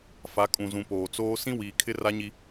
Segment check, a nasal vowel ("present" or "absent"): present